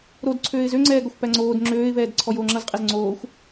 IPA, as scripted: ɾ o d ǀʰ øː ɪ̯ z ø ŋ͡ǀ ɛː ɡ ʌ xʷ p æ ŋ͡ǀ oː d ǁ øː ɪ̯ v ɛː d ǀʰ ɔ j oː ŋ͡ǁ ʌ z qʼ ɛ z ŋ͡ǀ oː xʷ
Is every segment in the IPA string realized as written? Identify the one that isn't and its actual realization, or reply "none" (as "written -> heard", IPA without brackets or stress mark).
ǁ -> ŋ͡ǁ